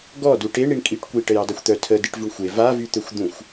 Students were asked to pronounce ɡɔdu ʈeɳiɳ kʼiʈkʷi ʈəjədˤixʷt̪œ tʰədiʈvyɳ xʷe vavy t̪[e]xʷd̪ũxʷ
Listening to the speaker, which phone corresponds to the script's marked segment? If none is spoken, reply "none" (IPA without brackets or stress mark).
ø